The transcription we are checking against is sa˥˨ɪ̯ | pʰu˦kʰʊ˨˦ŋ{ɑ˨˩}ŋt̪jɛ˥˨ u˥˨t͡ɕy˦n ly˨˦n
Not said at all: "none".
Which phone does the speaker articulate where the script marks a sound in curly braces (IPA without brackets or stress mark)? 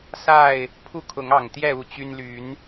ɑ˨˩